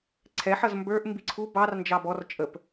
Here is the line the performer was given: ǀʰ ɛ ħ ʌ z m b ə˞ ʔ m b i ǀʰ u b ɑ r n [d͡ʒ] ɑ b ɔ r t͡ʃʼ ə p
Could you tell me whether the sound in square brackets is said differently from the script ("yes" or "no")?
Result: no